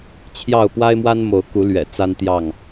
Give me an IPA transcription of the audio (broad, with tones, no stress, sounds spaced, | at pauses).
t͡ɕʰ j ɑ˥˨ ʊ̯ p w a˦ ɪ̯ m w a˦ n m o˨˦ ʊ̯ k u˨˦ l ɥ ɛ̰˨˩ t͡s a˦ n t̪ j ɑ˥˨ ŋ